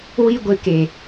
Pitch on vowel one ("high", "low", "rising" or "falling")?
high